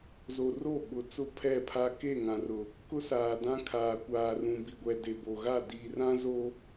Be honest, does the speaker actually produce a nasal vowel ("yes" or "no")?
yes